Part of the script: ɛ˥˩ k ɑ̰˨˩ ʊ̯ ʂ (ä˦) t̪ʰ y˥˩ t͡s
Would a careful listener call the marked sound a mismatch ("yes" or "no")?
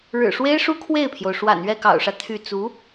no